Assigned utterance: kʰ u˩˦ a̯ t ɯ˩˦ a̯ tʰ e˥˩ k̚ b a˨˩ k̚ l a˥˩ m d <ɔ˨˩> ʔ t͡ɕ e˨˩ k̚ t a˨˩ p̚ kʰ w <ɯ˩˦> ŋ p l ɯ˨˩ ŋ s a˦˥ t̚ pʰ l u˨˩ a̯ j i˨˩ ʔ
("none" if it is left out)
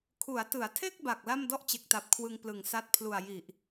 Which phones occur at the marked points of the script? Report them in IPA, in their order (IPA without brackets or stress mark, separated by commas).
ɔ˥˩, ɯ˧